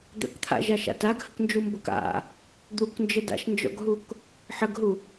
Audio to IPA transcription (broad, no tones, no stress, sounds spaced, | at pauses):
d̪ ə̰ k t̪ʰ a̰ ʒ a ʃ a̰ t a ɡ h ə k n d͡ʒ u m b ə k a̰ | d̪ u k n d͡ʒ ə d a̰ ʃ n d͡ʒ ɔ̰ ɡ ɦ u k | ħ ə ɡ ɦ u